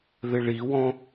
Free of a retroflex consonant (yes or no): no